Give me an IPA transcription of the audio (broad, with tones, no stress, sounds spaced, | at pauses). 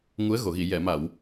ŋ u˧˥ ə̯ ɣ o˨˩˨ ɣ i˨˩˨ j ɛ˨˩˨ m a˨˩˨ w